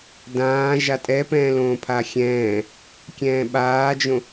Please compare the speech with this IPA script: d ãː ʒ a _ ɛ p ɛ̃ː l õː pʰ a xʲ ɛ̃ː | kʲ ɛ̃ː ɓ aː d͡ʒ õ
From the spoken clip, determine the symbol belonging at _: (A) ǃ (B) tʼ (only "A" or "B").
B